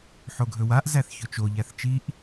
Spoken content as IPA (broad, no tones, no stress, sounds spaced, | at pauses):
ħ o ɡʱ ɵ w a ʔ z æ θ ç ɵ t͡ʃ o ʎ æ θ t͡ʃ i ʔ